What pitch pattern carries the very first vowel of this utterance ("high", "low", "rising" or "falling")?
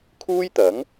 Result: high